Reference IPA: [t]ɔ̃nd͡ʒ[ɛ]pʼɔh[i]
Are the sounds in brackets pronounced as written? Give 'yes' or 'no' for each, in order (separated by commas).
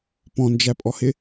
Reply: no, no, no